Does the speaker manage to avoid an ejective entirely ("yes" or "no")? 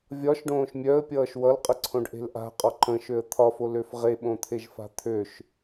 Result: no